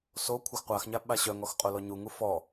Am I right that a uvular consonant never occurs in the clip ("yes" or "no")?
no